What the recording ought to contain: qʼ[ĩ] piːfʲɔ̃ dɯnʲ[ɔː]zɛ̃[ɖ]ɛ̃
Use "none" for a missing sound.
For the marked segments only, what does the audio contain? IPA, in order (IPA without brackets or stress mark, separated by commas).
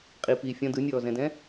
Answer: i, ɔː, d